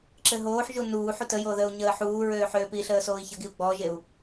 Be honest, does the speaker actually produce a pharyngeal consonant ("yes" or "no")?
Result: yes